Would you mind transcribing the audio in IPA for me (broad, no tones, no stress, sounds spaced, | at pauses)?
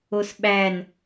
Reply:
o s ɓ æ n